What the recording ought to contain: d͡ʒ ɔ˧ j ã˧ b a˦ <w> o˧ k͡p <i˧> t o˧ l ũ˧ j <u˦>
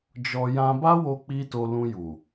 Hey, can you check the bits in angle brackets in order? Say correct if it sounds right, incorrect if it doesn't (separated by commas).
correct, correct, incorrect